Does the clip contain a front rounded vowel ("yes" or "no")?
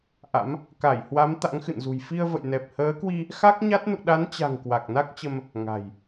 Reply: no